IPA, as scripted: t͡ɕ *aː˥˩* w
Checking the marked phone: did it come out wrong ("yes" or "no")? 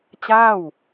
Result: no